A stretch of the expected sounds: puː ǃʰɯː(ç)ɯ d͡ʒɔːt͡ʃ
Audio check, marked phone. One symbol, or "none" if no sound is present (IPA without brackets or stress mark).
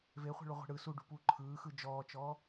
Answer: x